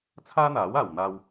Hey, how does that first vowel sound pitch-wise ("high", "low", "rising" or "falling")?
high